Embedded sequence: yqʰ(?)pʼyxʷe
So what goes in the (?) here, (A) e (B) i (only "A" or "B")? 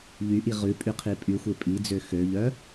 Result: B